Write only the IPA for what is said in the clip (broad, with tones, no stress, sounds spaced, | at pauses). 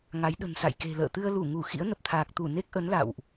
ŋ a˨˦ j ɗ ə̤˨˩ n s a̰˧˨ j k e̤˨˩ l ə̰ː˧˨ t̪ ɨ˧ ə̯ l u˧˩ ŋ u˧˩ x ḭ˧˥ ə̯ n ə˨˩ p̚ t̪ʰ aː˨˩ k̚ t̪ u˧˩ n e˦˥ k̚ ʔ ə˨˦ n l a̰˧˨ w ʔ